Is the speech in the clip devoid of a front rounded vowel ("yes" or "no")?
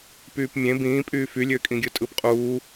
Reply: no